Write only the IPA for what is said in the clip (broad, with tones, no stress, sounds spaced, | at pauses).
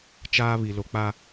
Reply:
t͡ʃ aː˦ β i˨ l o˨ k͡p a˦